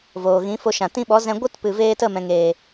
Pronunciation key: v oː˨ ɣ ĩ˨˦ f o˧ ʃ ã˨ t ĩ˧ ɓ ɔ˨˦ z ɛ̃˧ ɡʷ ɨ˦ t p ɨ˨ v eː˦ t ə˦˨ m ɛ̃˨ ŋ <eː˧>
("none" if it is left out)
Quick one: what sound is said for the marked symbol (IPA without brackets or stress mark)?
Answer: eː˨